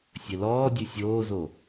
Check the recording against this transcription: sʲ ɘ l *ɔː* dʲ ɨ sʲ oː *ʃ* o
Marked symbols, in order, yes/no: yes, no

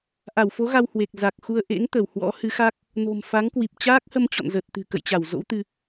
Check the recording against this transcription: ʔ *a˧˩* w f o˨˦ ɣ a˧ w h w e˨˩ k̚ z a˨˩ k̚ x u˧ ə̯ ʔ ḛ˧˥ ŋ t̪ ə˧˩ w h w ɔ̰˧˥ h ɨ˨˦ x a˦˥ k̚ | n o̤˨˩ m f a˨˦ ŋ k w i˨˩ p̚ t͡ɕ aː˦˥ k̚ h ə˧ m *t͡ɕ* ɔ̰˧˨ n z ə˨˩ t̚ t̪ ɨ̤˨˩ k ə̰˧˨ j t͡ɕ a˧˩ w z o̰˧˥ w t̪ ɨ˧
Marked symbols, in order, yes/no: yes, yes

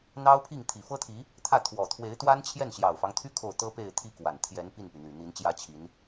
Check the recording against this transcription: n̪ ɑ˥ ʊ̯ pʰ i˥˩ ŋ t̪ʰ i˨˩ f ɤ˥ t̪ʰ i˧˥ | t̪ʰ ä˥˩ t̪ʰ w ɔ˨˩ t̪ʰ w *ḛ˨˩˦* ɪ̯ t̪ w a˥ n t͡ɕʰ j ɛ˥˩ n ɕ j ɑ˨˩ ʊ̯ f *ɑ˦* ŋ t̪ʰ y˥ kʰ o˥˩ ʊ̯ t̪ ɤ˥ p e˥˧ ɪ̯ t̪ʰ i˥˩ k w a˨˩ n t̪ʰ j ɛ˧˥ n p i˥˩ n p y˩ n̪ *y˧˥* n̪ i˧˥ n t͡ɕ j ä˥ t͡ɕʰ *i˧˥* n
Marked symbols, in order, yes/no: no, yes, no, yes

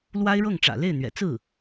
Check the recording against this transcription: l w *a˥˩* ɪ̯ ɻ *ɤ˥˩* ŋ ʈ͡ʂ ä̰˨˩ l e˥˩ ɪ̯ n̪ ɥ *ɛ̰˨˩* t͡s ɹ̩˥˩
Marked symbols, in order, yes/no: no, yes, yes

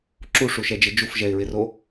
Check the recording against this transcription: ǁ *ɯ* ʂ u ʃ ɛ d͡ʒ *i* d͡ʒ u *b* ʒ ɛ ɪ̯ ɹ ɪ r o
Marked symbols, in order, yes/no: no, no, no

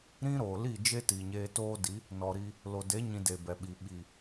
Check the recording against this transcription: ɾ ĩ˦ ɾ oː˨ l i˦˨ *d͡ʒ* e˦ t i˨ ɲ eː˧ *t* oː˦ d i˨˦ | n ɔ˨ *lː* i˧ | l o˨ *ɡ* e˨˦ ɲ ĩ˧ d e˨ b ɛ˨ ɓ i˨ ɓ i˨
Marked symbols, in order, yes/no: yes, yes, no, no

